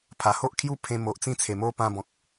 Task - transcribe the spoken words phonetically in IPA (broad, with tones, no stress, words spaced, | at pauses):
pʰa˨˩ho˦ʔkʰju˦ pʰẽ˧mo˨ʔt͡sĩ˦ t͡sʰe˨˩mo˦pã˧bɔ̃˨k̚